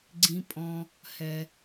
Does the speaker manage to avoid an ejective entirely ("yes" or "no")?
no